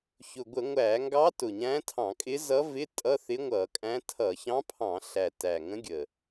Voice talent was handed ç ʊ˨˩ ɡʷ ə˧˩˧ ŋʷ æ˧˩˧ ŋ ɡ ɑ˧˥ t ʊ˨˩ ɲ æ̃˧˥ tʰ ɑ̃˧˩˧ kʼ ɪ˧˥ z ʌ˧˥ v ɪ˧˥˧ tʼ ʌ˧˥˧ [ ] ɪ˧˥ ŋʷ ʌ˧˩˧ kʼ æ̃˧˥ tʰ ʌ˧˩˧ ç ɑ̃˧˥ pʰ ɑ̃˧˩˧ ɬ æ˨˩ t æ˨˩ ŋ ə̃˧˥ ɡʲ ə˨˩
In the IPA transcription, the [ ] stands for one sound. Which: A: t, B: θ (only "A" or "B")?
B